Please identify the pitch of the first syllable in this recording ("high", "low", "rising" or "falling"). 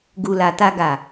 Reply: low